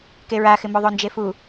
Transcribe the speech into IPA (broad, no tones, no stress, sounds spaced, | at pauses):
k e ɹ a x ɪ m o ðˤ o n d͡ʒ e f u